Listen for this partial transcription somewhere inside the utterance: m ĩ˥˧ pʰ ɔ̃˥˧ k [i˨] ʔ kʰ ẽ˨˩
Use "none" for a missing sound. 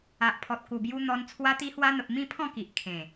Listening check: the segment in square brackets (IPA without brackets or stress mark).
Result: i˨